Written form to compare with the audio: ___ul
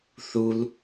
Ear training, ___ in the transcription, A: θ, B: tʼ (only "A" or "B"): A